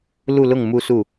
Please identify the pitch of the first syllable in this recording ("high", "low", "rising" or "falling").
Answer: falling